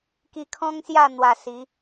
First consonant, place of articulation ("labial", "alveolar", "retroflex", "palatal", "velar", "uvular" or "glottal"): velar